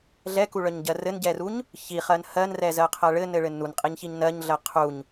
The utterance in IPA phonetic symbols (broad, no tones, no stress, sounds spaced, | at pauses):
ɮ ɛ k u ɭ œ ɲ ɟ ɜ r ɘ n ɟ ɛ r u ɲ | ç i χ ɜ n h ɜ n r ɛ z ɜ qʰ ɜ ɭ ɘ n ɘ ɭ ɘ n u n qʼ i ɲ ç i ɲ n ɜ ɲ ɮ ɜ qʰ u ɲ